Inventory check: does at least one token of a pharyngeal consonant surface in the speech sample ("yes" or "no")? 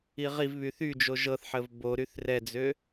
yes